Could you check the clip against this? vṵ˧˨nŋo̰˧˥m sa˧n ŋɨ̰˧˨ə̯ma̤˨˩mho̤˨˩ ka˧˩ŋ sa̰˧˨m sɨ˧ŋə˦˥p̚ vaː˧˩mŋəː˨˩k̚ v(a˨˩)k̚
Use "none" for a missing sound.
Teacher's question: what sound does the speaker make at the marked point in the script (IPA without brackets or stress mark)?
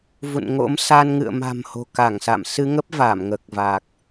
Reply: a˨˩